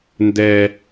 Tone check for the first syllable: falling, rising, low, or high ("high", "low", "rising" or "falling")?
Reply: high